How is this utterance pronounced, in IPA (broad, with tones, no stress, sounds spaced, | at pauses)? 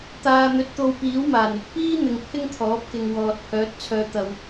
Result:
t̪ aː˨ n̪ ɵ˨ t̚ t̪ o˧ w p iː˨˥ w m aː˨˩ n ɪ˧ k̚ p iː˥ n̪ ɪ˨ ŋ pʰ ɪ˥ ŋ t̪ʰ ɔː˨˥ p̚ k ɪ˨ ŋ w ɔː˨ t̚ pʰ œː˨˥ t̚ t͡sʰ œː˧ t̪ ɐ˧ w